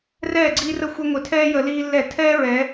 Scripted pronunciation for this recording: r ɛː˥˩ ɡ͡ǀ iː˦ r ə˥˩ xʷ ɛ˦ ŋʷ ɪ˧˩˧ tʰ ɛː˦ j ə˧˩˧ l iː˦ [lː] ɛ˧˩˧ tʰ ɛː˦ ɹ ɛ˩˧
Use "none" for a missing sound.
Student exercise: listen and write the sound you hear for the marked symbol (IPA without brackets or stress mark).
lː